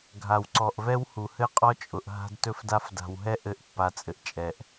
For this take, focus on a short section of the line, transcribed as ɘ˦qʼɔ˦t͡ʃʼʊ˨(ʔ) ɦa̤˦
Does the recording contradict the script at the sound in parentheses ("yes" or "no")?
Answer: no